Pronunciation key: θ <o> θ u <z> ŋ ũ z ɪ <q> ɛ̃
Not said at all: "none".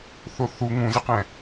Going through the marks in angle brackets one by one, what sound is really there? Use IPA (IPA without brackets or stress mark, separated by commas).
o, none, q